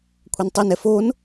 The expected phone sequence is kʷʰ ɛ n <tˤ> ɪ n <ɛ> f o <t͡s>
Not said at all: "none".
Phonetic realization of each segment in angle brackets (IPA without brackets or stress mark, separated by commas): tˤ, ɛ, n